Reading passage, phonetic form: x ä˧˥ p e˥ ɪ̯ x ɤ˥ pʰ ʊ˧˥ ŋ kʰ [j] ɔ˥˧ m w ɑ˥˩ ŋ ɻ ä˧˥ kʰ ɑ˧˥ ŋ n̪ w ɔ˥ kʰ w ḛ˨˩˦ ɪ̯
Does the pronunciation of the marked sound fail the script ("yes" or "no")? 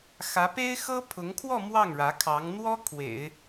yes